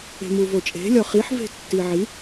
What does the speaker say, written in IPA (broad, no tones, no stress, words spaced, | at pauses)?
e̤muvot͡ʃʼe̤ lʲɒχiħ ve̤tːiʕi